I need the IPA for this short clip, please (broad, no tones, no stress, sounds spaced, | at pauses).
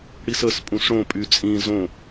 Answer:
ɽ i s ə s pʼ ũ s ɽ õ pʼ y t͡sʼ ĩ z õ